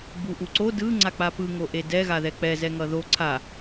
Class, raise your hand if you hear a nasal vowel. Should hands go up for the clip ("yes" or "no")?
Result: no